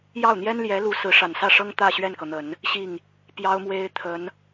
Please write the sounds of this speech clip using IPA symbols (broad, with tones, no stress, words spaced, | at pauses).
jɑ˥˩ʊ̯n̪jɛ˥n ljɛ˧˥lu˧˥ sɹ̩˧˥ʂa˨˩nsä˥˩ʂɤ˥ŋ t̪ä˥˧ ɕɥɛ˥˩nkɤ˩n̪ə˨˩˦n | ɕi˥˩ŋ | pjɑ˥ʊ̯mwe˥ɪ̯ t̪ʰə˧˥n